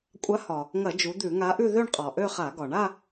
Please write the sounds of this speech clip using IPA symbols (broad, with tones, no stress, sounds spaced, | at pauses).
kʷʼ a˨˥ h ɒ˩ | ŋ ɐ˧˩˧ d͡ʒ u˩˧ d̪ ʉ˧˩˧ ŋ a˨˥ ʔ ʉ˥˧ ð ø˥˧ ɳ qʼ ɒ˩ ʔ ø˥˧ χ a˧˩˧ ɡ ɒ˩ ɳ a˥˧